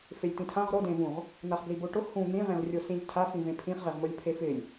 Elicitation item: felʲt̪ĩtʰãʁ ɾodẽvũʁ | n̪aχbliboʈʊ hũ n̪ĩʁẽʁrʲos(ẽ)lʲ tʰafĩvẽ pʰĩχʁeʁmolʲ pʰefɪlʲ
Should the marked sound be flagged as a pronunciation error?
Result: yes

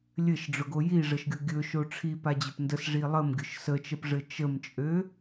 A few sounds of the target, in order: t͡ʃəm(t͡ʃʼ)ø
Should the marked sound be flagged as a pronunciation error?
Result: no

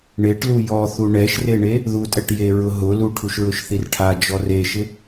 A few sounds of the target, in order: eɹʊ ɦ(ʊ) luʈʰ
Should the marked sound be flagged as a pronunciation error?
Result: no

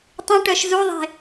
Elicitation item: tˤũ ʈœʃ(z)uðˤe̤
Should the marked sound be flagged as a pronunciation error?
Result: no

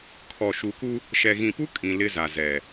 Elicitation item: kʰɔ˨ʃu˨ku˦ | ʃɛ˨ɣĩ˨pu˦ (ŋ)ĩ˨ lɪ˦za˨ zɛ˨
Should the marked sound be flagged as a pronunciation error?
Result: yes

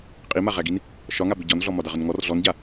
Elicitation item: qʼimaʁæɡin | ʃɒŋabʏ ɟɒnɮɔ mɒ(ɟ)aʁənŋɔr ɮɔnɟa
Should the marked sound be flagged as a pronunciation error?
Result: yes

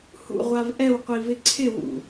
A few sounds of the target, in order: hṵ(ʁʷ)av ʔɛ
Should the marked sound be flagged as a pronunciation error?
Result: no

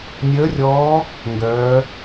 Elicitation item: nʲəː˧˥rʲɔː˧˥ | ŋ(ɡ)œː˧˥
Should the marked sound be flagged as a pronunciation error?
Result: no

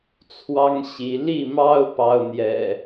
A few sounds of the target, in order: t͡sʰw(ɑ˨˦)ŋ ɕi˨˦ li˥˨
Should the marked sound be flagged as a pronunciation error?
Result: yes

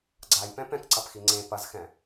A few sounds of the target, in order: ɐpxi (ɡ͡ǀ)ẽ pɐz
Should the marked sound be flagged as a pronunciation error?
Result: yes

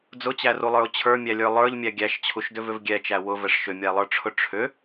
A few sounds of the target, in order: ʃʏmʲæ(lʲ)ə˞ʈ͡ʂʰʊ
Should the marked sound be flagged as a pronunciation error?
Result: yes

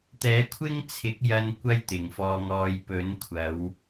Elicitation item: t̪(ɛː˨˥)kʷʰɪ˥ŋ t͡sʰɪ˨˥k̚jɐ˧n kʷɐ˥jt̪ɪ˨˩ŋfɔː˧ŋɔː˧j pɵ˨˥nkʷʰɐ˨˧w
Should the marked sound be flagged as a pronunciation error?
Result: no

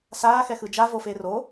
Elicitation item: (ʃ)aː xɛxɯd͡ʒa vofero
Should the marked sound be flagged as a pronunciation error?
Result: yes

